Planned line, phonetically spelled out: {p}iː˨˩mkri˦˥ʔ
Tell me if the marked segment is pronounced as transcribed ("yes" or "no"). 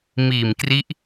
no